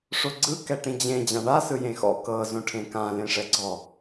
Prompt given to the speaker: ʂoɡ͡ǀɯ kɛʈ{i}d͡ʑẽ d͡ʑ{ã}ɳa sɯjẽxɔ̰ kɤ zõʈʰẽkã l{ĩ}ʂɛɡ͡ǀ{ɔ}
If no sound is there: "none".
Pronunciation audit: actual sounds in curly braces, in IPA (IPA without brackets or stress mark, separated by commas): ĩ, ã, ẽ, ɔ